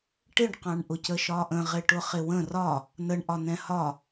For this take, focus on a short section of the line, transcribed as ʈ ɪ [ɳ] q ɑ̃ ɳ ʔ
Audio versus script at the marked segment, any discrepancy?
no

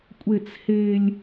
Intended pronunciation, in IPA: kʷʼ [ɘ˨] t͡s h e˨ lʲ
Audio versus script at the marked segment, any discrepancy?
yes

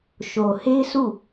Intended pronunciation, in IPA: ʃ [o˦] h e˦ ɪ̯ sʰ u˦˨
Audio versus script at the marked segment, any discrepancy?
yes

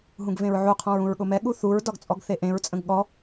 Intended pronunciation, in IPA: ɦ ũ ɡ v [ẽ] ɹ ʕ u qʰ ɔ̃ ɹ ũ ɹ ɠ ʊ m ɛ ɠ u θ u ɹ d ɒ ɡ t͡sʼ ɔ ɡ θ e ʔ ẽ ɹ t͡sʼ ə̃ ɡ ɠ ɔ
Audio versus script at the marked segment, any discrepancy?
no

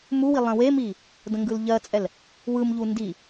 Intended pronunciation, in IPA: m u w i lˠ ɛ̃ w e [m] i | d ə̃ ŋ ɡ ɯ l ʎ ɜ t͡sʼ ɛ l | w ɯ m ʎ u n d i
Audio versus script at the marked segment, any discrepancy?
no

